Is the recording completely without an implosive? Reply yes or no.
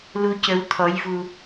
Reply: yes